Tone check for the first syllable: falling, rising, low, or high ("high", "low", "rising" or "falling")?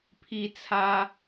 high